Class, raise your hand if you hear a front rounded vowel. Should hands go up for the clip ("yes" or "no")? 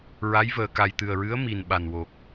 no